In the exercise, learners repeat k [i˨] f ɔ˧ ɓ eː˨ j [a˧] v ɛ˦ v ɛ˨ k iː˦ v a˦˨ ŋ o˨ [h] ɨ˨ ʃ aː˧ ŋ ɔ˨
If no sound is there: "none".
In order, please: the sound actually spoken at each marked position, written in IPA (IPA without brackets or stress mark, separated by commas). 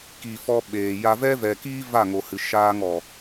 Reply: i˨, a˧, h